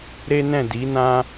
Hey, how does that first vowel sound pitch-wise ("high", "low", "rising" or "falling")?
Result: high